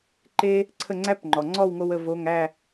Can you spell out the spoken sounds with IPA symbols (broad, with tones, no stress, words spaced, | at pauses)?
ǃe˥ | ǀʰə˥˨ŋ͡ǀæ˥pŋ͡ǃɔ˩ ŋ͡ǀɔ˥˨wŋo˧w ə˥˨vo˧˥˧ŋ æ˥˨